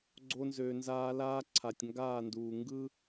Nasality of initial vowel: oral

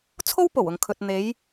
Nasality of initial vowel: oral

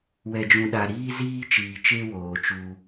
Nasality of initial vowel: oral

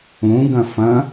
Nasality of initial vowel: nasal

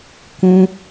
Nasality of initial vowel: nasal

